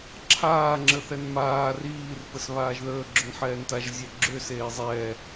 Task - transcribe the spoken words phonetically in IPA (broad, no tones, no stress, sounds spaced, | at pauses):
ǁʰ aː ŋ͡ǁ ə θ ɛ n m aː r iː r p ə s β aː ʒ ð əː ɡ͡ǁ ʏ n ħ ɛː n t a ʒ zʲ ɛ ɡ͡ǁ ʏ s eː zˤ ɛː